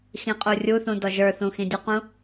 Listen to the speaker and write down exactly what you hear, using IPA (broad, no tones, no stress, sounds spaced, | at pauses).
x ĩ qʼ u rʲ u θ ũ d ɔ ʒ ə˞ θ ũ x ĩ dʲ ʊ q ũ